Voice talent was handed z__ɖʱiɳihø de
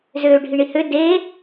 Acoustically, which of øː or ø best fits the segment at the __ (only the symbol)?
øː